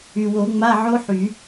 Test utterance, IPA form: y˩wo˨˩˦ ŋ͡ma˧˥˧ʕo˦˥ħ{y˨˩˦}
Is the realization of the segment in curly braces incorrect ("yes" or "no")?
no